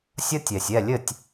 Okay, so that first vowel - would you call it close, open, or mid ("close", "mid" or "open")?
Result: open